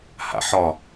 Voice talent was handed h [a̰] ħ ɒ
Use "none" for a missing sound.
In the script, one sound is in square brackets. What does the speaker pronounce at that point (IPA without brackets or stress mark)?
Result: a̰